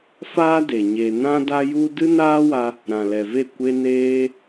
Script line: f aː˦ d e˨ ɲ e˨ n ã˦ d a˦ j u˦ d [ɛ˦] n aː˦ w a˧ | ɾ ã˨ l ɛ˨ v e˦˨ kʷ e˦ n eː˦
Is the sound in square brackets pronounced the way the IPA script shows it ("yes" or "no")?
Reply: no